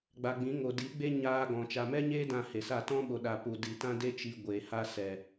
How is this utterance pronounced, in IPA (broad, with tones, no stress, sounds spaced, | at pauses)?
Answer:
ɡ͡b a˨ ɡ͡b ĩ˨˦ ŋ o˨ d i˨˦ ɡ͡b e˦ ɲ aː˧ ɡ ɔ̃˨ t͡ʃ a˨ m ɛ˦ ɲ eː˦ d ã˦˨ h e˨ s a˦˨ t ɔ̃˦ ɓ o˨ ɗ a˨ p u˨ d i˨ t ã˦ d e˦ t͡ʃ i˧ ɡʷ e˨ h a˦ s ɛ˨